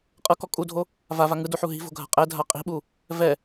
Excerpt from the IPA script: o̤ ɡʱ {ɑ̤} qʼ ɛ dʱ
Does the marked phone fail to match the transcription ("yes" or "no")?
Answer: yes